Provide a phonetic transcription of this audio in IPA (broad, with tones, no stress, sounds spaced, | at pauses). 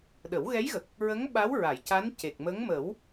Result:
ɗ ə˨˩˦ w ɣ ɛ˧˥ j ɣ ə˨˩ k̚ | ɹ ə˧˥ ŋ ɓ a˧˥ w ɹ a˨˩˨ j c a˧˥ n c e˨˩ k̚ m ə˧˥ ŋ m ə˨˩˦ w